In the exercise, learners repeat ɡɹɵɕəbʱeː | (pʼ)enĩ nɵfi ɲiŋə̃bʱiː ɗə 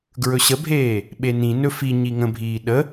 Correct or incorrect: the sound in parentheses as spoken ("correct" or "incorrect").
incorrect